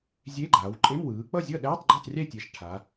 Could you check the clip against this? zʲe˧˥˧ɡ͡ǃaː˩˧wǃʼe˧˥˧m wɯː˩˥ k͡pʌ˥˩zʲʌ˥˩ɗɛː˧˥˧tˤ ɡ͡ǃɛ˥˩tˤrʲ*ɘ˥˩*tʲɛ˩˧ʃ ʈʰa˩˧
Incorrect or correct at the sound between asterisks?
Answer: incorrect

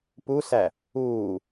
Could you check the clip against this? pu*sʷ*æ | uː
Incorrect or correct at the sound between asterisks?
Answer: incorrect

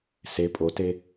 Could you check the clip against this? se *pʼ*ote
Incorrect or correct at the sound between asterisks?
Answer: correct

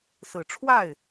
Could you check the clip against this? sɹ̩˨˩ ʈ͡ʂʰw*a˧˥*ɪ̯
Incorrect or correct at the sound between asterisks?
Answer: incorrect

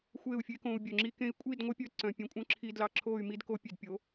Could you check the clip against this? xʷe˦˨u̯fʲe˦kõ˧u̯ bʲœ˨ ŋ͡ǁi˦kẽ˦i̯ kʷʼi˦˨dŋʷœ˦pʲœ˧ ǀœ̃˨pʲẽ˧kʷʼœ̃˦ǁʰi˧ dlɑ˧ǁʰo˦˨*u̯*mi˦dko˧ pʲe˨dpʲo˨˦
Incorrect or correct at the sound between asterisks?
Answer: incorrect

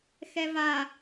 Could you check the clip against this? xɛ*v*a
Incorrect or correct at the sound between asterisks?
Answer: correct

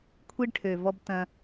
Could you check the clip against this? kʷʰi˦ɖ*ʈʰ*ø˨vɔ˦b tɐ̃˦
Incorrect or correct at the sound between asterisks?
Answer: correct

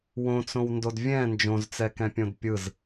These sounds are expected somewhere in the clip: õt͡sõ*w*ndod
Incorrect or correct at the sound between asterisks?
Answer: correct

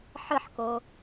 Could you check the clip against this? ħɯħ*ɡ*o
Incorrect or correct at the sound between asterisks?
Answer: incorrect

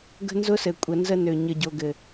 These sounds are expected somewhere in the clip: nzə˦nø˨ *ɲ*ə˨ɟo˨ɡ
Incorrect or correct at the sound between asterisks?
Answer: correct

